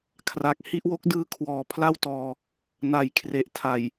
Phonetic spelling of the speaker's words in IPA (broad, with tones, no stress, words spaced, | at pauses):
kʰra˨˩k̚hi˥˩ʔwo˦˥k̚ dɯː˧ kʰwɔː˨˩pʰla˥˩wtɔː˧ | na˩˦jkʰre˨˩ʔtʰa˨˩j